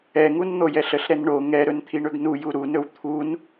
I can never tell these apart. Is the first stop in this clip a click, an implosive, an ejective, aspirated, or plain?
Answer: aspirated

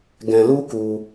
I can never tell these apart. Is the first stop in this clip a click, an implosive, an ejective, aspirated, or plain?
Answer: plain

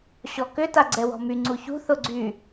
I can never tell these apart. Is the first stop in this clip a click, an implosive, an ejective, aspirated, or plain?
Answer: plain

